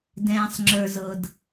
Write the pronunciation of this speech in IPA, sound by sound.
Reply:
d ɛ̃ː˨ sˤ ŋ͡ǁ ə˞˨ z ɤ˨ d

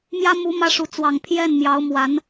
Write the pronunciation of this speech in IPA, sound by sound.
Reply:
m j ä˥ m u˧˥ m ä˥ ʂ u˧˥ t͡s w ɑ˨˩ ŋ pʰ j ɛ˥˩ n m j ɑ˧˥ ʊ̯ m w a˧˥ n

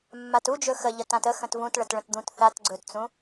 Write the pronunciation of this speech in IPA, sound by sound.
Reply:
mː a t u d͡ʒ ɵ x ə ʎ ə t ã t ə x ə̃ t v ũ t ɭ ə t ɭ ə̃ t d̪ ũ t θ a t ɡ͡ǀ ɵ t t͡s ũ

